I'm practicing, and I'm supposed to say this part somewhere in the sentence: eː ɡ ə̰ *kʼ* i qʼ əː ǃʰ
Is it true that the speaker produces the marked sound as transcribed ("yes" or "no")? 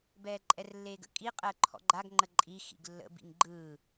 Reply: yes